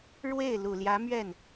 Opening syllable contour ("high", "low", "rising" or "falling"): falling